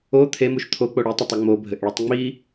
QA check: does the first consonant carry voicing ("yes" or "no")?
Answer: no